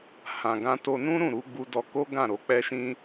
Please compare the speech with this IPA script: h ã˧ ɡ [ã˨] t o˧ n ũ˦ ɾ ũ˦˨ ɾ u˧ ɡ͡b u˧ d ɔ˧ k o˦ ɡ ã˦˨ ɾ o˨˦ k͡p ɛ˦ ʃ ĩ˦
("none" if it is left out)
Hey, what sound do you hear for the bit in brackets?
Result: ã˦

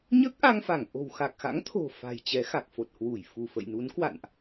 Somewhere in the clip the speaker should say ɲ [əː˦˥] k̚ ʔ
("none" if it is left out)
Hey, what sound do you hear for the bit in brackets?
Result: əː˦˥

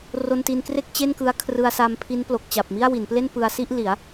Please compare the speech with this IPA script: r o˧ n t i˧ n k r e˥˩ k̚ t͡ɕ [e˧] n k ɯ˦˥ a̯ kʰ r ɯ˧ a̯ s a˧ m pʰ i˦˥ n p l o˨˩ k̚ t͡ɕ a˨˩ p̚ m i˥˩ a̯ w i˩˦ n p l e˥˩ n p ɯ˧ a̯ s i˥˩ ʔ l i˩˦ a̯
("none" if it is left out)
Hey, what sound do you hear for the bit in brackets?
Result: e˥˩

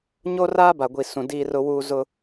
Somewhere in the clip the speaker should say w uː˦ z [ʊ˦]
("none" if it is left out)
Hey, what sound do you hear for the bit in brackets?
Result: ʊ˦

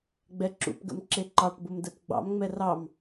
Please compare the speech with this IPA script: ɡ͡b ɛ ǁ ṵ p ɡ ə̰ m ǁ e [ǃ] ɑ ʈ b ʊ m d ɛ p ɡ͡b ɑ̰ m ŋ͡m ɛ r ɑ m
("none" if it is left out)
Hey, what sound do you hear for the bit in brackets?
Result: ǃ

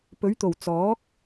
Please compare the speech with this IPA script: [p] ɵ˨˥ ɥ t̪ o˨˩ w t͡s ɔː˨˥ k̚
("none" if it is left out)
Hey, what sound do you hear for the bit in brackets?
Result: p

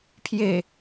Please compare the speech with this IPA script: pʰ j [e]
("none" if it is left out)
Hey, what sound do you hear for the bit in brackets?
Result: e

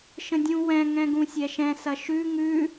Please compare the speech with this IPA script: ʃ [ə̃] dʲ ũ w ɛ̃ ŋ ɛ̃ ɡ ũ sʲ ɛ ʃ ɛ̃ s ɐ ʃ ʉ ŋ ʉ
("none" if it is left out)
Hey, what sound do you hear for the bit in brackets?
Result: ə̃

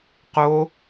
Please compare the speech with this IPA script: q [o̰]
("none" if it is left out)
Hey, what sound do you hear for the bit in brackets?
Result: o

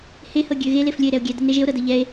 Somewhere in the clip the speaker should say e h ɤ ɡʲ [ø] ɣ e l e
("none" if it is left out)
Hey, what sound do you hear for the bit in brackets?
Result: ø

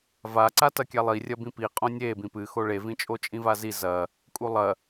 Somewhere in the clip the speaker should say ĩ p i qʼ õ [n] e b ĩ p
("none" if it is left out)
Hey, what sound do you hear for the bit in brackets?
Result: nʲ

